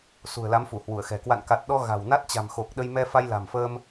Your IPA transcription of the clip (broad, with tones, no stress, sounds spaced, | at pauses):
s ṳ˨˩ ə̯ l a˨˦ m f u˧˩ h w u˧˩ ə̯ x ɛ̤˨˩ k w a̰˧˨ n k a˨˩ t̚ ɗ ɔ˧ ɣ a̤˨˩ w n a˦˥ t̚ t͡ɕ a̤˨˩ m x o˨˩ k̚ ɗ ə˧ j m ɛ˧ f a˧ j l a̤˨˩ m f əː˧ m